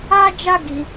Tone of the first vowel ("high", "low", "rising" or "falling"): high